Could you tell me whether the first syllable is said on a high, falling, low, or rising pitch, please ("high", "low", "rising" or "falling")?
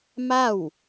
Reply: falling